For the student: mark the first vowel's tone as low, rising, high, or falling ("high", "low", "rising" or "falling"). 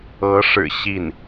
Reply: rising